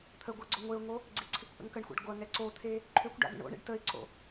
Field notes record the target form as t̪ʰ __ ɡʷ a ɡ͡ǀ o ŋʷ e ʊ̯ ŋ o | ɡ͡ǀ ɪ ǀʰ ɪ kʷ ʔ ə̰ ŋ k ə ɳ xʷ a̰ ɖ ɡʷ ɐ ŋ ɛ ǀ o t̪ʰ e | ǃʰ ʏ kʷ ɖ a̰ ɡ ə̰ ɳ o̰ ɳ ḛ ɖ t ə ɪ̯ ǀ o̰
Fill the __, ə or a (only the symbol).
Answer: ə